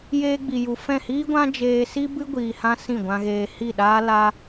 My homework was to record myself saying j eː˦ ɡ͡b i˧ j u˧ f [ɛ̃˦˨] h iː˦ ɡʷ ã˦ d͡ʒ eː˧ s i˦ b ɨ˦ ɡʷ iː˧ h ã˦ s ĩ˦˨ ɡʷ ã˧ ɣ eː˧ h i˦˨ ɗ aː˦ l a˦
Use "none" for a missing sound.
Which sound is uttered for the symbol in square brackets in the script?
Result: ɛ̃˦˨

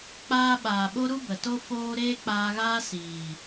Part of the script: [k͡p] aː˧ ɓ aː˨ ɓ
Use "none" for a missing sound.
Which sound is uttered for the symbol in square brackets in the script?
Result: k͡p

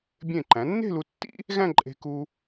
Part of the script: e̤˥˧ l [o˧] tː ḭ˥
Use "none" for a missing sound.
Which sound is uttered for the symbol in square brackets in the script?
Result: u˧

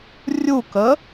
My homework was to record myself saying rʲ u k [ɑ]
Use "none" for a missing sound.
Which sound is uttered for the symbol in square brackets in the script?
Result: ə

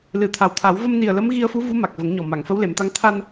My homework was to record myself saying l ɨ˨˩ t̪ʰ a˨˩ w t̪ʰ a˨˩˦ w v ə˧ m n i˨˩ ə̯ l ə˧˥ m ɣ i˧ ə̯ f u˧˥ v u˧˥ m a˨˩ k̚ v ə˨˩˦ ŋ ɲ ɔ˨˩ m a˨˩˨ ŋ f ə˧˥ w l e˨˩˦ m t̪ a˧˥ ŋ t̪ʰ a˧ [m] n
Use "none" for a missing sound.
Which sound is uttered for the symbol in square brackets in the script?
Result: none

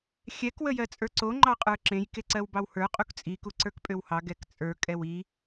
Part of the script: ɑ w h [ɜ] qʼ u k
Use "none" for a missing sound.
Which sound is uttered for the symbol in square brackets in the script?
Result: ə˞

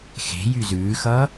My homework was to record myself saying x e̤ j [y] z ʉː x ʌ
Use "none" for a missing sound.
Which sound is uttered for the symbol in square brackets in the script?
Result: y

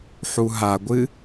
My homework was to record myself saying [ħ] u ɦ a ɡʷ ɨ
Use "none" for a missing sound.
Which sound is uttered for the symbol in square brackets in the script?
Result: ħ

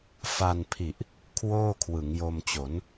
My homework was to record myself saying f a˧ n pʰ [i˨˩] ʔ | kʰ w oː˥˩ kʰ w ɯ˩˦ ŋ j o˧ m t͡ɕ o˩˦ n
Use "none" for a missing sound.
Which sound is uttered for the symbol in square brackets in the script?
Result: i˨˩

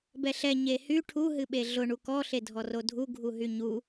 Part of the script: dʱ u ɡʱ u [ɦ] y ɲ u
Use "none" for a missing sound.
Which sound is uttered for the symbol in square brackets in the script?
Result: ɦ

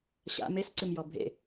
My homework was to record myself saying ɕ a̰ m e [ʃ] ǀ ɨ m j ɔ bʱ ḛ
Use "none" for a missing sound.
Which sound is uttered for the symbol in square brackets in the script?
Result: s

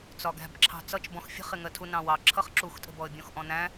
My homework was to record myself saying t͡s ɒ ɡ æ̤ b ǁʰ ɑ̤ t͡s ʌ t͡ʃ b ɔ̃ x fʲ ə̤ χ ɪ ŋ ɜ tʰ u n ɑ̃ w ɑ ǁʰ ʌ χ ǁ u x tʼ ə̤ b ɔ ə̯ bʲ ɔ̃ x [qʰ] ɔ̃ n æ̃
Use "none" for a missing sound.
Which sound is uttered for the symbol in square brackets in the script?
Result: ʔ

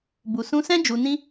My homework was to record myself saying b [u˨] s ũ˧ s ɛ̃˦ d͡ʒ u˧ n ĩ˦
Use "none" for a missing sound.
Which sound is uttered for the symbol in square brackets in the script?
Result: u˨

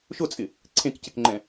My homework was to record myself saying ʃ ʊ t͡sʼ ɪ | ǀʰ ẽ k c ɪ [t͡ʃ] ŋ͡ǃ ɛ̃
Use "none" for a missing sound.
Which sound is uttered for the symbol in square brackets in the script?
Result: k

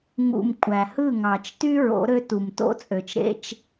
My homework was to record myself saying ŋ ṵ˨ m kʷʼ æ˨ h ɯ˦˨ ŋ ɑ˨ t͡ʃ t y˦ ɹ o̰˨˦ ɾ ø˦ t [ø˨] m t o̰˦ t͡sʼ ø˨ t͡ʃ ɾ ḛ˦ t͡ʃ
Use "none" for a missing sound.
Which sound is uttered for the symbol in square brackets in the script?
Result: u˨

